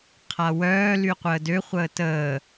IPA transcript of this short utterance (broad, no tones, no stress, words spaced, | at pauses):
qʰawœː lyqʷəːdø χʷəːtəː